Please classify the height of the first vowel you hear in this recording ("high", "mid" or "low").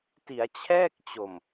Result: high